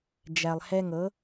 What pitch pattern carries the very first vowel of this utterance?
low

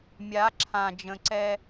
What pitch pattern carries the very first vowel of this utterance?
rising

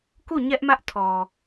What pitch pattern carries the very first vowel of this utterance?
falling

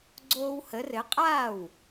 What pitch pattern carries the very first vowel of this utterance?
high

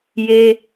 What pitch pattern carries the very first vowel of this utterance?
high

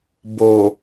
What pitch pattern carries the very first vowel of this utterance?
low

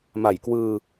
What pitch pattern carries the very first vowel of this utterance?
low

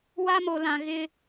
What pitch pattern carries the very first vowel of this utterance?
high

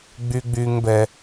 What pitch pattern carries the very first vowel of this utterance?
high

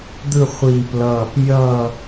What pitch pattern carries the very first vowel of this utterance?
falling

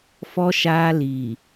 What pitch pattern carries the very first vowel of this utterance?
high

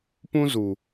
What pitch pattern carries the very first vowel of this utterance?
high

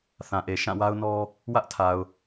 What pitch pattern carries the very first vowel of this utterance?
low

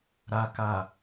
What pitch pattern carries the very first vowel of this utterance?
low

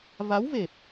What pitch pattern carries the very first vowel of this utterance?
rising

